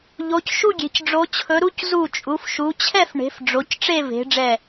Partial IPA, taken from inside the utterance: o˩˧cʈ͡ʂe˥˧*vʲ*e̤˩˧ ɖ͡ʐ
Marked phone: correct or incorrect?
incorrect